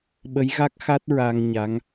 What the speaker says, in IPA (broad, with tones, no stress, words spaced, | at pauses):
ɓə˧˥jɣa˦˥k̚ xa˦˥t̚ ɹa˧ŋɲa˧˥ŋ